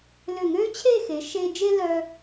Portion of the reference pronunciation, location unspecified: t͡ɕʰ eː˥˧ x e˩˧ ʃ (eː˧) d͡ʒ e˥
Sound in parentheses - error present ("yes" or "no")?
no